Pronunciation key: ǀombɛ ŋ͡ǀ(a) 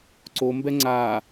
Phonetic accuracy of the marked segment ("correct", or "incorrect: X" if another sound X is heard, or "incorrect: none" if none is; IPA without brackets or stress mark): correct